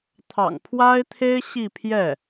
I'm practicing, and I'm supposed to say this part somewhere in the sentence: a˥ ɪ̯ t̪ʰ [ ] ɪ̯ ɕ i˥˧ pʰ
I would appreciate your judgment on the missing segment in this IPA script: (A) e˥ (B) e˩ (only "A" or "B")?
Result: A